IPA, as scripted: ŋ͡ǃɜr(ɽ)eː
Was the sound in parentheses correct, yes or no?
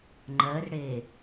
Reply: yes